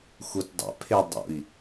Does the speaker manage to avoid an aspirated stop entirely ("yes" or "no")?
no